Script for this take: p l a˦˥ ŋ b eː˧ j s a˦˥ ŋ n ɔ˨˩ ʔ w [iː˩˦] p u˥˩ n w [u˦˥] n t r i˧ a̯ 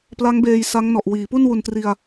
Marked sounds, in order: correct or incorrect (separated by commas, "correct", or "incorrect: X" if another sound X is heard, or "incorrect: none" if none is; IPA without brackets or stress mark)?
correct, incorrect: u˧